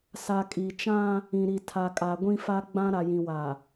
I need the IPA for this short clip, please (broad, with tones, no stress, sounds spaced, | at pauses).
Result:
s a˨ kʼ i˨ t͡ʃ ã˦ | ĩ˨ ɾ i˨ tʰ a˨ kʼ a˨ ɡʷ ĩ˦ f a˦ ɡ͡b ã˦ ɾ a˨ j ĩ˨ w a˨